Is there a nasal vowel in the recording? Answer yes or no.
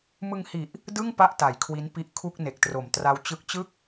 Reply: no